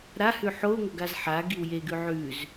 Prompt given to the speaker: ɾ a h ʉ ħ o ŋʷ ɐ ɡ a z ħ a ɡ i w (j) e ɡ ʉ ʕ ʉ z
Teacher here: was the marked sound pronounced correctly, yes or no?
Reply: yes